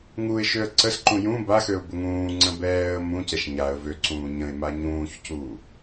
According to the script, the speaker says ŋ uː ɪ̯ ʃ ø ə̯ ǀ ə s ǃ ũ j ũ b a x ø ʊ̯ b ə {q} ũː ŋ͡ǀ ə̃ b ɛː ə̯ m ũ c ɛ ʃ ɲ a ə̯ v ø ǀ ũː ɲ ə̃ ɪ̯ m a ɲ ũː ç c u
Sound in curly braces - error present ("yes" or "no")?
yes